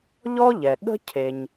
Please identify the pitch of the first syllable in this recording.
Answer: high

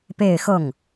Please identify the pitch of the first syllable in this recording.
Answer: falling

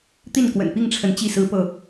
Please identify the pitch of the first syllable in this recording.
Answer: falling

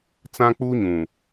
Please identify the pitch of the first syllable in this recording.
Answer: high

